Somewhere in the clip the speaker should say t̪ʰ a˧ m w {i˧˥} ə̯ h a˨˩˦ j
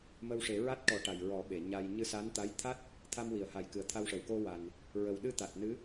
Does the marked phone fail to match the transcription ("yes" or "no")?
yes